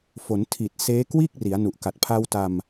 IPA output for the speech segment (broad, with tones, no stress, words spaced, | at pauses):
fo˩˦ntʰi˨˩t̚ seː˦˥kwiː˥˩k̚ ri˩˦a̯nu˨˩ʔka˨˩t̚ pʰa˧wta˧m